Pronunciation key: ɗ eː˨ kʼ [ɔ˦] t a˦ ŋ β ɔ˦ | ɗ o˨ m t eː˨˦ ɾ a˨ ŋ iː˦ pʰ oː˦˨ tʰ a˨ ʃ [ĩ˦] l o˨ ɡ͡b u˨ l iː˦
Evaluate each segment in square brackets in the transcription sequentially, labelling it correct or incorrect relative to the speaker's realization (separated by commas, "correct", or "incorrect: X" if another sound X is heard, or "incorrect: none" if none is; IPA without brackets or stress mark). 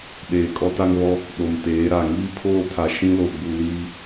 correct, correct